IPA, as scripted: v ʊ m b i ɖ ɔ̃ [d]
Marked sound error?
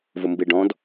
no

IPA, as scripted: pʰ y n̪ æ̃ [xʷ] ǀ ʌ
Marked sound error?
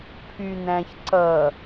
yes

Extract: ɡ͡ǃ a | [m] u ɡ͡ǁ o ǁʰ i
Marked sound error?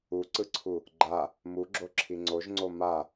no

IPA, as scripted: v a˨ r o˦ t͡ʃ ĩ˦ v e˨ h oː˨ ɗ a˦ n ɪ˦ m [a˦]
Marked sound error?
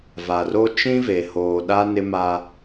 no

